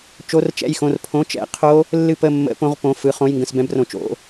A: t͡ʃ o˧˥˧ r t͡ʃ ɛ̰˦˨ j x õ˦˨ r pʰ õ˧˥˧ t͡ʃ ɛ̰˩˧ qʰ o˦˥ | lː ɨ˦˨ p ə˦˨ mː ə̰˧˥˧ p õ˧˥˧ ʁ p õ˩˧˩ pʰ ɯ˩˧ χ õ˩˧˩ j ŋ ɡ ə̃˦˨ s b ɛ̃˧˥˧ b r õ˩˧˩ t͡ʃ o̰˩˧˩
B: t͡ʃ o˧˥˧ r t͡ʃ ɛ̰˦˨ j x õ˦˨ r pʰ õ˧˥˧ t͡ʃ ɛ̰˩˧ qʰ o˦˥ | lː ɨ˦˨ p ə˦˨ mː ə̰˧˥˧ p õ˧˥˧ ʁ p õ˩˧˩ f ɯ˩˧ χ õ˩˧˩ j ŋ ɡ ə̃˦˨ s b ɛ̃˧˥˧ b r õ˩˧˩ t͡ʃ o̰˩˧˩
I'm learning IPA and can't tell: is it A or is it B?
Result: B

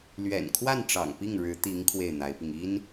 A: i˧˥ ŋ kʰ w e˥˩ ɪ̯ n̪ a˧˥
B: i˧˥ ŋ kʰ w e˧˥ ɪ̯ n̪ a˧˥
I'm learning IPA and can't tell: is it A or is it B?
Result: A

